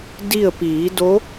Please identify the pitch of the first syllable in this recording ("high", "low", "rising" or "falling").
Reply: falling